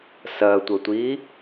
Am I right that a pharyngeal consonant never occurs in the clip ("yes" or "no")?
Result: yes